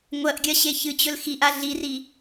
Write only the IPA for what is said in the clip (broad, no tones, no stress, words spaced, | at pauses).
ŋʷɐʔɡʲɐ ɕeçɨt͡ɕɵl xiʔa ɮiri